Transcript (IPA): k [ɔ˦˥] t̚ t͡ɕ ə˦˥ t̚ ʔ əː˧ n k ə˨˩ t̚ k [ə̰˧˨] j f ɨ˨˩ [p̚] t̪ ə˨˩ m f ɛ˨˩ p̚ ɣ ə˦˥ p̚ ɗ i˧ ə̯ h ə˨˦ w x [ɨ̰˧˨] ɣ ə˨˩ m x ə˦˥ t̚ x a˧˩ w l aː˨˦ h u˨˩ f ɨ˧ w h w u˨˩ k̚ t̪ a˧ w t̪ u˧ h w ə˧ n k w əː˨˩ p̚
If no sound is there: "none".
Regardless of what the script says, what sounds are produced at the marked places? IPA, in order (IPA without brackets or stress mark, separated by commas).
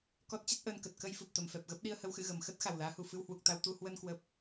ɔ˦˥, ə˧, p̚, ɨ̰˧˨